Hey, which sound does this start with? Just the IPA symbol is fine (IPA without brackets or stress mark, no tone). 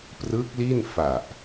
p